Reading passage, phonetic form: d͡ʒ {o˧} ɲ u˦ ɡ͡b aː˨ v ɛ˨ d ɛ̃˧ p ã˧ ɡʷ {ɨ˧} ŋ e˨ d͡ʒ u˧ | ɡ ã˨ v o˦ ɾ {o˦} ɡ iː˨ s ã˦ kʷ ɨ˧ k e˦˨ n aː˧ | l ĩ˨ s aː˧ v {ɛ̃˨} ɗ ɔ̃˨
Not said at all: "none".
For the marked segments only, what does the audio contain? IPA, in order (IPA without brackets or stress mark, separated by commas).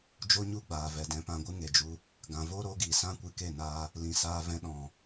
o˦, ɨ˦, o˦, ɛ̃˧